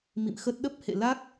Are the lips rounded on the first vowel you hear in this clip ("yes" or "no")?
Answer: no